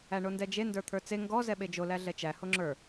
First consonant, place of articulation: retroflex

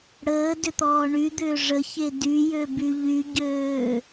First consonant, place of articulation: retroflex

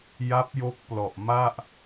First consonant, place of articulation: palatal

